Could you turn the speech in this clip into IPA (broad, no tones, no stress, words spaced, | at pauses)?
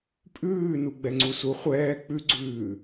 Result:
pʼʉːnu ɡ͡bɛŋ͡ǀusu χʷɛː k͡pʉɡ͡ǀʉː